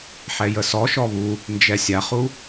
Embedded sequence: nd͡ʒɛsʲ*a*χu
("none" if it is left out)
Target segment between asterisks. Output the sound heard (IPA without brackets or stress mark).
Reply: a